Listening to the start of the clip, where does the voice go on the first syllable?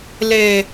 low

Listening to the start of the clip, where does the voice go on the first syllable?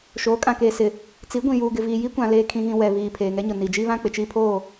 rising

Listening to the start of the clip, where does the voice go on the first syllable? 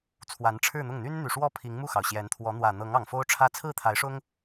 rising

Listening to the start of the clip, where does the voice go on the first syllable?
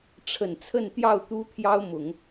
low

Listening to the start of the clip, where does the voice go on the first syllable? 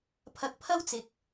rising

